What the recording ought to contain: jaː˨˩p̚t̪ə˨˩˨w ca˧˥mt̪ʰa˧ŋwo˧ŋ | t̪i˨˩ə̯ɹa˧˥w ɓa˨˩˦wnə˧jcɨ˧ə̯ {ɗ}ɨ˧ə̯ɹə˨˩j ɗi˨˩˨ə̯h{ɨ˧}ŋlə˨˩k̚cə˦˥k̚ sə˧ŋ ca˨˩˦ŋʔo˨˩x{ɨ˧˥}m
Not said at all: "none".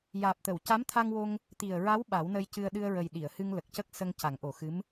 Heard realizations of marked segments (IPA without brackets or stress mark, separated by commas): ɗ, ɨ˧, ɨ˧˥